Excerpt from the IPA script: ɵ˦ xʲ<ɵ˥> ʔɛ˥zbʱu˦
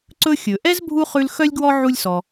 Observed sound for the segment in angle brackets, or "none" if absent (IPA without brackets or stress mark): ɵ˩